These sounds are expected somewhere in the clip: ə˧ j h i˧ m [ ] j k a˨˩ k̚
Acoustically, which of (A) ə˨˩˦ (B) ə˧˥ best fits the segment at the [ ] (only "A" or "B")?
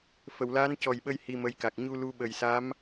B